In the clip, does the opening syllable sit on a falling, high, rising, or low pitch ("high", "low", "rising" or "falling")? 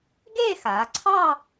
falling